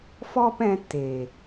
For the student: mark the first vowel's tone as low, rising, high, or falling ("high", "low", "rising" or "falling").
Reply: high